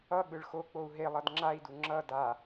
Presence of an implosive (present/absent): present